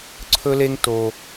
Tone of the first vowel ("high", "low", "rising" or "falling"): high